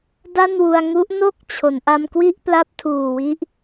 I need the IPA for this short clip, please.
d a˥˩ n w u˧ a̯ ŋ u˦˥ ʔ n o˥˩ k̚ t͡ɕʰ o˩˦ n ʔ a˧ m k w i˥˩ ʔ p l a˦˥ p̚ tʰ uː˨˩ w i˦˥ ʔ

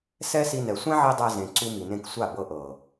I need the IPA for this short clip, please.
s ɛ˦ s i˧ n ɛ˨ sʷ ɛ̃˦ ʕ i˧ dˤ ɛ˧ z ẽ˨ ǀ u˧ m i˨ n ẽ˧ k sʷ a˦˨ b ɤ˧ ʔ ɤ˨

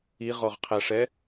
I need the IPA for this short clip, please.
i ʁ ɔ ʁ qʰ æ ʂ ɛ

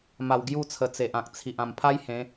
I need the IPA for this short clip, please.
m a˨˩ w ɡ j u˥˧ t͡sʰ ə˨˩ t͡s e˨ ʔ ã˨ k̚ t͡sʰ i˨ ʔ ã˨˩ m pʰ a˦ j h ẽ˨˦

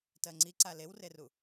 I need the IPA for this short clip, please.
t ɜ ŋ͡ǀ i ǀ a l e w r e r u

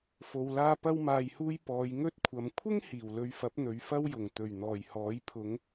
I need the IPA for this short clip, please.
f o˧ w l aː˥ p ɐ˧ w m aː˨ j h uː˧ j p ɔː˨˧ j ŋ ɵ˥ t̚ kʷʰ ɐ˨ m kʷʰ ɪ˥ ŋ h iː˨˩ w l ɵ˧ ɥ f ɐ˨˥ p̚ n̪ ɵ˨˧ ɥ f ɐ˥ w j ʊ˨˩ ŋ t̪ ɵ˨˩ ɥ n̪ ɔː˨˩ j h ɔː˨˥ j pʰ ʊ˨˧ ŋ

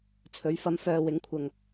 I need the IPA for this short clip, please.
t͡sʰ ɵ˨˥ ɥ f ɐ˨˧ m f œː˨ w ɪ˨˥ ŋ kʷʰ ɐ˨ ŋ

